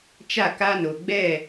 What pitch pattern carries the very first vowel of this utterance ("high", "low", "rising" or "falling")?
falling